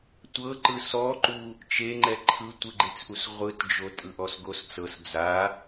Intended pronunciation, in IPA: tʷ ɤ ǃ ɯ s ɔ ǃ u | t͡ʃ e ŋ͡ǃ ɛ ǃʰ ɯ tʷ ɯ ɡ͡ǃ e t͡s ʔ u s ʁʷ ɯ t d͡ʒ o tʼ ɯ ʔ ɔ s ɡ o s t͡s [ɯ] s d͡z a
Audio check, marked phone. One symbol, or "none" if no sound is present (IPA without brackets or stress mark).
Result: ɤ